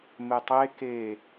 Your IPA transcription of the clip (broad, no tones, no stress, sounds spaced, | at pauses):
m e tˤ e k e